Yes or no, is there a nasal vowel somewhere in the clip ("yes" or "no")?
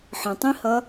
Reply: yes